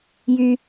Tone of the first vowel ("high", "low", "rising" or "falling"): high